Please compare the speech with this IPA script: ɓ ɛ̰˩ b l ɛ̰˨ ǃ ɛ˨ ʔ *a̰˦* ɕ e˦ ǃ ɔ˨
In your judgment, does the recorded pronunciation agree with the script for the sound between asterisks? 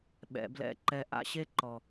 yes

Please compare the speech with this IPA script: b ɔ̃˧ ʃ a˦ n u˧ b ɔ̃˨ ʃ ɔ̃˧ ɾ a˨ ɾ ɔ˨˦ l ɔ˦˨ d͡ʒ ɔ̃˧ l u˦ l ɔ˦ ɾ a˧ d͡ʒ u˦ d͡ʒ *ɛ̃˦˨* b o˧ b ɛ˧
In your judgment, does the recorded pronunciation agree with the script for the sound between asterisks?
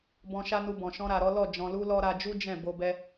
yes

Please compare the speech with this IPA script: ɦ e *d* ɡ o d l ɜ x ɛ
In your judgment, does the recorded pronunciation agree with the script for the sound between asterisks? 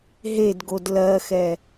yes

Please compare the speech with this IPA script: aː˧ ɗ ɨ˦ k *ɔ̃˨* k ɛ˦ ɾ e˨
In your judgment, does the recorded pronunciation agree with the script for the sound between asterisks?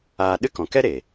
yes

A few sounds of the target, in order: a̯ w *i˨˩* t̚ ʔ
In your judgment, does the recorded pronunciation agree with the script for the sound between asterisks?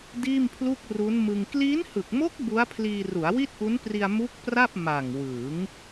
no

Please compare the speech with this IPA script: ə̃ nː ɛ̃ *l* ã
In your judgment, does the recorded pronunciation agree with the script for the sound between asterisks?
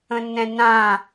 no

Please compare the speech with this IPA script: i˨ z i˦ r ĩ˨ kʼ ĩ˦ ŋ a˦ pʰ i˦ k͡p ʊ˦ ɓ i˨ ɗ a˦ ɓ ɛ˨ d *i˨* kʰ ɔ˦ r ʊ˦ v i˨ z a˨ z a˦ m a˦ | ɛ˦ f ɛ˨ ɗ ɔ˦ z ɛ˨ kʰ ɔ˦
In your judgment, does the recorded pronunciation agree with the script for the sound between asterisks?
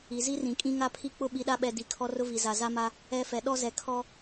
yes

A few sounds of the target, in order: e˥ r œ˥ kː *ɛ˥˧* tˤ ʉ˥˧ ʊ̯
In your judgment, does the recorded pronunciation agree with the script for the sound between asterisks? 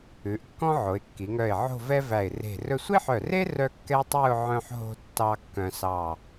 no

